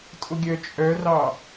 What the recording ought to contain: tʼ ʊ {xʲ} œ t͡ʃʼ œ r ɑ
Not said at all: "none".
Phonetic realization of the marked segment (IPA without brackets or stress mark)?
ɡʲ